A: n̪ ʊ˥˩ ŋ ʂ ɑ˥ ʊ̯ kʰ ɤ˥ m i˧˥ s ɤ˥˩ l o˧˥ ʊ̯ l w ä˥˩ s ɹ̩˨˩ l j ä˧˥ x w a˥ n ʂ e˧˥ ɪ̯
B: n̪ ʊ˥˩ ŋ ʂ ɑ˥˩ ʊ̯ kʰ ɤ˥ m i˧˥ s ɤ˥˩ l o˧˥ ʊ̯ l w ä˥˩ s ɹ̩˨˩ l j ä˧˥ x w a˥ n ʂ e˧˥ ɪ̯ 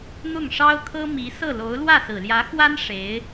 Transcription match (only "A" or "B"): A